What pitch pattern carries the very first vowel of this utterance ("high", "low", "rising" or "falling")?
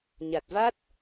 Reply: low